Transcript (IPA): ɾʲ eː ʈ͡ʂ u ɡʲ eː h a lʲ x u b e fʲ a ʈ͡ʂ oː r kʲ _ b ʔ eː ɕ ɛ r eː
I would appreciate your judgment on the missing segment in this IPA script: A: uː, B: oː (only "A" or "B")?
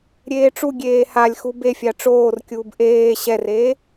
A